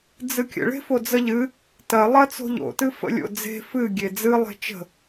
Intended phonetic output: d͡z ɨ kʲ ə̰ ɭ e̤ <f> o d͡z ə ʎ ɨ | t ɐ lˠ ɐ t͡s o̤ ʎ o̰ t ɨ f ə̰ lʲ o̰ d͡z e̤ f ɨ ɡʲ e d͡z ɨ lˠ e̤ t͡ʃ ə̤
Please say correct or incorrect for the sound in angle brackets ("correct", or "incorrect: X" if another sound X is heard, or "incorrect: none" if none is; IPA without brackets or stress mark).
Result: correct